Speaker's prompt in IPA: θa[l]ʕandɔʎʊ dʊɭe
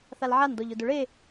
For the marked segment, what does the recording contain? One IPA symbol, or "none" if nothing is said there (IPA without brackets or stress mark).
l